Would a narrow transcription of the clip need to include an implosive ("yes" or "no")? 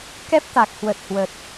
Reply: no